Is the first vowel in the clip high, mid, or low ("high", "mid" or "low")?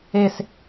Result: mid